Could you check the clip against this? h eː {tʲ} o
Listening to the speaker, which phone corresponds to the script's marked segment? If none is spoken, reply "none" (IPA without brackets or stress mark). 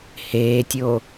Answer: tʲ